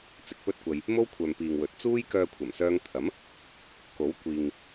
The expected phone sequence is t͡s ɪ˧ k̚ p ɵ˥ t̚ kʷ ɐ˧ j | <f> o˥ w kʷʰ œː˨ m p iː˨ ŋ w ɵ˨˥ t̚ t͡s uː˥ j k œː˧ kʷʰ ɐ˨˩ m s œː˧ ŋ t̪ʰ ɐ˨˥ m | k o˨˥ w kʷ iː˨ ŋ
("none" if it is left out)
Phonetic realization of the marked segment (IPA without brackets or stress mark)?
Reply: m